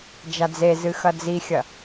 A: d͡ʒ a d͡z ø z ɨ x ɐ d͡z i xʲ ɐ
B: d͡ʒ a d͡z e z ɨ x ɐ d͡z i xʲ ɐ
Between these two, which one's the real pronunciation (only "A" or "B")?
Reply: B